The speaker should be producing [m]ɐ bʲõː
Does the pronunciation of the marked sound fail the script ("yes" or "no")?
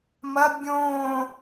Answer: no